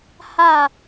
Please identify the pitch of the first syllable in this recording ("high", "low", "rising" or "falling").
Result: falling